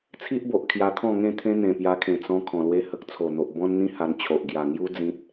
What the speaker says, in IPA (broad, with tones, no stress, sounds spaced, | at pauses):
t͡sʰ i˦ ʔ b o˨ ʔ kʰ j a˧ t̪ʰ ɔ̃˥˧ ŋ ẽ˥˧ t̪ʰ ẽ˦ n̪ ẽ˨˩ p j a˧ kʰ ẽ˨˩ t͡s ɔ̃˧ kʰ ɔ̃˨˩ l w e˧ h ə˨ k̚ t͡sʰ o˨˩ n̪ o˨ ʔ b ɔ̃˦ n n̪ ĩ˦ h a˧ n t͡ɕʰ o˨ ʔ ɡ j a˨˩ ŋ j u˦ d͡z ĩ˦ t̚